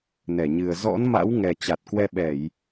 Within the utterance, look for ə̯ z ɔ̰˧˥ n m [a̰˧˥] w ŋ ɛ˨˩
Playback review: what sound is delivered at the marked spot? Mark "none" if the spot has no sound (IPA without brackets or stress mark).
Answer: a̰˧˥